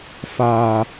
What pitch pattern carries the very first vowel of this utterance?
low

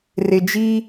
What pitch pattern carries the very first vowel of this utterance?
low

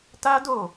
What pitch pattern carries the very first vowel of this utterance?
high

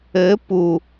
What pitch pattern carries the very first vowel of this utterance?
rising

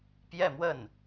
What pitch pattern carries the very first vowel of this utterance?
falling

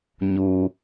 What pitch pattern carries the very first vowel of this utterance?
low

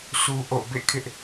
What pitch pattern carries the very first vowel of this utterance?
high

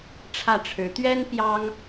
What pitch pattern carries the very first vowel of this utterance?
falling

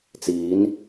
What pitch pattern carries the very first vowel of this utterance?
rising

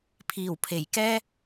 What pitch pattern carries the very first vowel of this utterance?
low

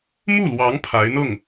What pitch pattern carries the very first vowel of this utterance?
falling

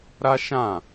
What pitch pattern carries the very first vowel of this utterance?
high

